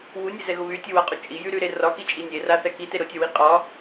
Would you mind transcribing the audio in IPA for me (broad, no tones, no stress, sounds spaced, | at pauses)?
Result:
w u nʲ e z ɛ ɣ ʊ β y tʲ u w a qʼ u t͡ʃʼ i j y ɾ y ɾ e r ɒ k i t͡ʃʼ i nʲ e r a θ ɛ k i t e ɾ ʊ tʲ ɔ w i qʼ ɒ